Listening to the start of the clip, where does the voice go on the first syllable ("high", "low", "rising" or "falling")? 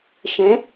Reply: rising